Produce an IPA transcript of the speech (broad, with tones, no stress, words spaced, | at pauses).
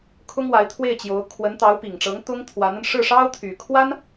kʰʊ˥ŋwa˧˥ɪ̯ t̪ʰwe˥˩ɪ̯t͡ɕjo˧˥ʊ̯ kʰwə˧˥nt̪ɑ˧˥ʊ̯pi˨˩ŋʈ͡ʂɤ˧˥ŋ t̪ʊ˥ŋt̪ʰwa˧˥nə˧n ʂɻ̩˥˩ʂɑ˥ʊ̯t̪ʰy˨˩kʰwa˥n